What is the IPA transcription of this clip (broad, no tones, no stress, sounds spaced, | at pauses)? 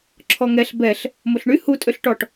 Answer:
ǁʰ ɔ ŋ ɛ ɬ b ɛ ɬ | m o ɬ ɳ y h u tʼ ø ɬ ʈ ɔ ʈ